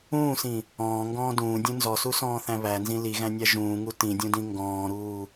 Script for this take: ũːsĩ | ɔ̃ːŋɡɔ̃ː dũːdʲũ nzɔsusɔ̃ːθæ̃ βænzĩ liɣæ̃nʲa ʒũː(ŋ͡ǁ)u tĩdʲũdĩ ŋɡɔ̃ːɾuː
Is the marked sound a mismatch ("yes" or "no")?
yes